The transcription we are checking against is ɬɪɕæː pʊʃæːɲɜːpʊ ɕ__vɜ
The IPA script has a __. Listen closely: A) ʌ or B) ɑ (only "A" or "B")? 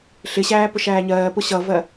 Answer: A